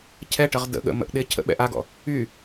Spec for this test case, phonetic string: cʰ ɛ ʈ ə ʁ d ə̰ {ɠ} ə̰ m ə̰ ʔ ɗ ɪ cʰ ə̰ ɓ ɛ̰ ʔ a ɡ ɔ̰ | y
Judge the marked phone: correct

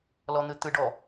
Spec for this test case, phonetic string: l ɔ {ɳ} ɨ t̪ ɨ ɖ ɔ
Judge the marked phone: incorrect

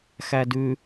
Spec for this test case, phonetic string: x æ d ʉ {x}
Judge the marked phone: incorrect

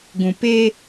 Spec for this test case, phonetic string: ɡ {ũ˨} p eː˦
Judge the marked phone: correct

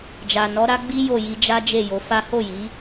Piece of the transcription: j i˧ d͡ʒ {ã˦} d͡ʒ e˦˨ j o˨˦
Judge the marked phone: incorrect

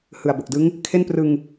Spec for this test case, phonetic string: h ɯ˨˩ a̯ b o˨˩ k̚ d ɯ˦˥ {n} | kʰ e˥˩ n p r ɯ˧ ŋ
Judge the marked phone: incorrect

